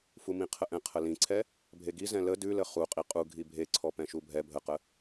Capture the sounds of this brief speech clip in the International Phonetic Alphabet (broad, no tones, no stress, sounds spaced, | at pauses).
f u m ĩ qʰ ə ʔ ɛ̃ qʰ ə l ĩ ǀʰ ɛ | bʱ e ɡ i z ɛ̃ l ə d ʉ l ə χ u qʼ i qʼ u ɡʱ i bʱ e ǀʰ ɔ p ɛ̃ ʃ u bʱ ɛ bʱ ə q ə